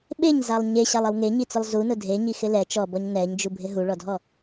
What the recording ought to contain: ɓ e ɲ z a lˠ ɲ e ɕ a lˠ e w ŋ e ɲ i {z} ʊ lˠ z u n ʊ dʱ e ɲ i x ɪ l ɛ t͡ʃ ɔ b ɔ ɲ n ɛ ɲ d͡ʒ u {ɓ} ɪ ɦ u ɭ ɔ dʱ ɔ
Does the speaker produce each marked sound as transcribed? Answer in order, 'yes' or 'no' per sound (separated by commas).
no, no